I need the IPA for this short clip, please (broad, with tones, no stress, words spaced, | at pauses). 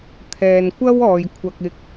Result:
t̪ʰɛː˨nkʷɐ˥w ɔː˨jkʷʰɐ˧k̚ ɪ˧k̚